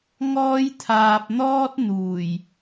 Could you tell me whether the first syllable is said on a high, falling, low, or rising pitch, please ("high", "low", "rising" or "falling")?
high